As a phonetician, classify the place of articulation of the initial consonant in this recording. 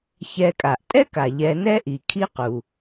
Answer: palatal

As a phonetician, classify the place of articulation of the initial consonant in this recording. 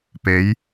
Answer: labial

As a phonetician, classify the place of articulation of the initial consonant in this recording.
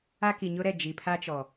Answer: velar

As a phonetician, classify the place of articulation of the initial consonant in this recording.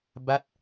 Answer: labial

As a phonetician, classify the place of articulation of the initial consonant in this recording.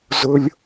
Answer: alveolar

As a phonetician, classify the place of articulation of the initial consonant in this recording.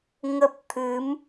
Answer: velar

